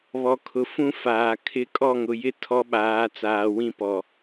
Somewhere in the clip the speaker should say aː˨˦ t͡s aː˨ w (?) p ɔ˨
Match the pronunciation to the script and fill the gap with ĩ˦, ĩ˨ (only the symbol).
ĩ˦